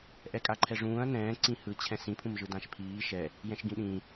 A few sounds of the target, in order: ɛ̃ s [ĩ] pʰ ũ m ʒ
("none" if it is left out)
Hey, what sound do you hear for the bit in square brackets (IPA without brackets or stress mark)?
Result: ĩ